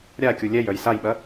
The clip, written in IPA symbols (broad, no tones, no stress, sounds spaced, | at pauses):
ɾʲ a kʲ u lʲ ɛ j œ j s a j ɓ ɐ